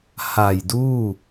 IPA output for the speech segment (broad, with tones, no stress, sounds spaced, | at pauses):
h a˨˩ j d uː˥˩